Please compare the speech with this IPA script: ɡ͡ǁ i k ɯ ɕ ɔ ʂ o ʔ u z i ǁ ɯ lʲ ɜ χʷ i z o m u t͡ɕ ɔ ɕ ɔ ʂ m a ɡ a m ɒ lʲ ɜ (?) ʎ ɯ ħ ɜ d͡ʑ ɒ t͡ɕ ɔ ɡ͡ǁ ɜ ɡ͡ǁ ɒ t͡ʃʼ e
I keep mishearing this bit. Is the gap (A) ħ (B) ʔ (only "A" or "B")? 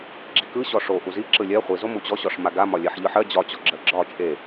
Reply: A